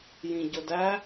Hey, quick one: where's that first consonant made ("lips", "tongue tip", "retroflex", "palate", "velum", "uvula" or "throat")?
palate